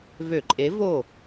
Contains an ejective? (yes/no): yes